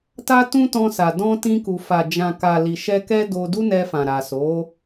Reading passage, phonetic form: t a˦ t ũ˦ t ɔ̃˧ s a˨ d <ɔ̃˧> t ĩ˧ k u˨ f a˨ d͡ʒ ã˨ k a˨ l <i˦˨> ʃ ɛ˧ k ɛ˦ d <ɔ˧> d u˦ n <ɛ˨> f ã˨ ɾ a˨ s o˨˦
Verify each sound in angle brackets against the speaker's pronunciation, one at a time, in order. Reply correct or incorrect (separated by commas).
correct, incorrect, incorrect, incorrect